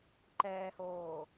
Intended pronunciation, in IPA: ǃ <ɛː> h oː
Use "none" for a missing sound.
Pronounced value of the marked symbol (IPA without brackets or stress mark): ɛː